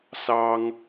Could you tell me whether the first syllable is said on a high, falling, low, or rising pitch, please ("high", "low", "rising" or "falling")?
high